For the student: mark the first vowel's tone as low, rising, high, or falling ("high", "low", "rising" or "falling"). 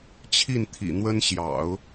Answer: falling